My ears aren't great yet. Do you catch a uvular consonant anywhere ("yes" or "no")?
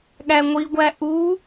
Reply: no